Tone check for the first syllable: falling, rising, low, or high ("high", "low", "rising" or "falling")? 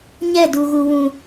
falling